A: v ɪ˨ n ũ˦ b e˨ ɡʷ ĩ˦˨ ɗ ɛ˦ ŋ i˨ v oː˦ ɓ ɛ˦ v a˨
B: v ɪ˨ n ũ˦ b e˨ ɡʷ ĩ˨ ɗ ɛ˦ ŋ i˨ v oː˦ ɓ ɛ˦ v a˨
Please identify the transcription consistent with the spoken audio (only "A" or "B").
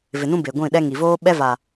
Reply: A